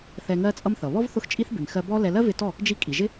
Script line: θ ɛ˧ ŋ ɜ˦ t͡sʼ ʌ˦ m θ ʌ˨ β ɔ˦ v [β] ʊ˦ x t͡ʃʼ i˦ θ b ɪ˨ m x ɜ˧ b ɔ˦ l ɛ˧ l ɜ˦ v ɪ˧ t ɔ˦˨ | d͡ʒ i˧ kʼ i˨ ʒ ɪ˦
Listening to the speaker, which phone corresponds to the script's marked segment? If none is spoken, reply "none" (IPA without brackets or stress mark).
θ